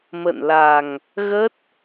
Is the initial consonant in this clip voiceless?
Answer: no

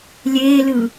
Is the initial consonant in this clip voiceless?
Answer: no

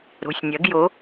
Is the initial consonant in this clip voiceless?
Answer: no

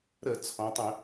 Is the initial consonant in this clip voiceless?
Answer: no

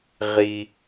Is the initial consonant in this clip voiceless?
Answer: no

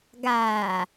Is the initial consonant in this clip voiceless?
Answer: no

